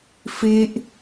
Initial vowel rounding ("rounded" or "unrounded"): unrounded